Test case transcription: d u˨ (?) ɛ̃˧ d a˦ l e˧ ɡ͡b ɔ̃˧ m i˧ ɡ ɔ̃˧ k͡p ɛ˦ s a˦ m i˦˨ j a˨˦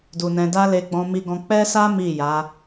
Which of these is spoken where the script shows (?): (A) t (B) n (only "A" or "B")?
B